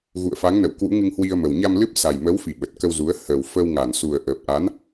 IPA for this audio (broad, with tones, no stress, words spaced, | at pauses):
ɣṵ˧˨ə̯fa˨˦ŋnə̰˧˨w kwṵ˧˥ŋɨ˧ŋhwi˧ə̯mə˨˩w ɲa˧mlɨ˦˥p̚sa˨˩j mə˨˦wfi˧˩ ɓə˨˩t̚kə˧wzu˨˦ə̯ hə˨˩w fə˧wŋa˧˩n su˨˩ə̯ʔəː˨˩p̚ʔa˨˦n